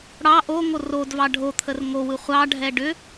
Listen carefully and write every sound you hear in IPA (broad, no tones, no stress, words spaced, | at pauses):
ɽɑ ʔoŋo rodvɑ ɖʱo t̪ʰərŋowɯ χʷɑɖʱɛ ɖʏ